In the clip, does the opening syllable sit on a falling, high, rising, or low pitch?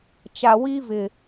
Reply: low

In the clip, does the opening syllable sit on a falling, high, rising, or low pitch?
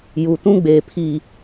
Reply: low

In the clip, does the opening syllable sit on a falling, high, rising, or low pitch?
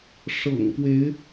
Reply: low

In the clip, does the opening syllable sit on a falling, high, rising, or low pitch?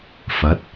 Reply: rising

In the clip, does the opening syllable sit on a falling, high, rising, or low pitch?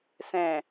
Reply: low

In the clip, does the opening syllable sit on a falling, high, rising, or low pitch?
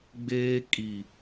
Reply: high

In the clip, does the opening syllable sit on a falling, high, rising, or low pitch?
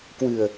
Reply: low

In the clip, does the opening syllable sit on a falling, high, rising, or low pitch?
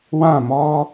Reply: falling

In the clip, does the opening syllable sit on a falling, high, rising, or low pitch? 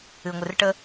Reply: low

